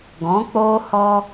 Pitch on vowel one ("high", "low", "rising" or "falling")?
rising